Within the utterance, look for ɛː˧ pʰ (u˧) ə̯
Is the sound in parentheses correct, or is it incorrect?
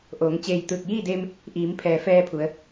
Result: incorrect